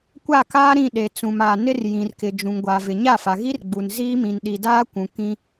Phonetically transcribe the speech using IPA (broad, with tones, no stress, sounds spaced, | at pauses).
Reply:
kʷ a˦˨ k aː˦ ɾ ĩ˦˨ ɗ e˨ t͡s ũ˨ m a˨ n ɪ˦ r j ĩ˨ r k ɪ˨ d͡ʒ ũ˨ ŋ ɡʷ a˨ v ɪ˨ ɲ a˦˨ f a˨ ɣ i˦ r ɡ͡b u˨ n z iː˦ m ĩ˨ n ɗ i˨ d aː˦ kʷ ũ˨ k ĩ˦